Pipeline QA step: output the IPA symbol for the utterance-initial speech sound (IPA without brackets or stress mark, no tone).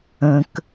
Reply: ə̃